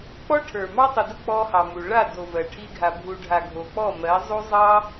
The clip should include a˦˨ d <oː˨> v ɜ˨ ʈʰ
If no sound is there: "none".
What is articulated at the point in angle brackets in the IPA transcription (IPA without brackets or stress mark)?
o˨